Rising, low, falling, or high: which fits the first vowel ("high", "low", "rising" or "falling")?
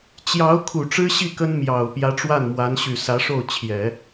rising